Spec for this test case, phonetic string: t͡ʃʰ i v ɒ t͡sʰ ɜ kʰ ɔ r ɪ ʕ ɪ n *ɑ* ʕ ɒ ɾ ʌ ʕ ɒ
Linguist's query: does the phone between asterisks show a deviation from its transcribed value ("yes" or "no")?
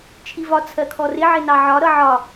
no